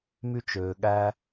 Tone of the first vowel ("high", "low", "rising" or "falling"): high